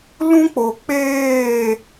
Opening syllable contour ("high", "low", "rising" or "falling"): high